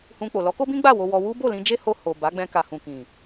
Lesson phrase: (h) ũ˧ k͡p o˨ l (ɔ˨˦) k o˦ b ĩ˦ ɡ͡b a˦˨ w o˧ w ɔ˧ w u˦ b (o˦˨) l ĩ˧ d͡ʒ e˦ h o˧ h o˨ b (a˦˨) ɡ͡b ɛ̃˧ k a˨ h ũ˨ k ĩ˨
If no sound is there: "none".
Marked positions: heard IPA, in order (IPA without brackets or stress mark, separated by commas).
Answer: h, ɔ˨˦, o˦˨, a˨˦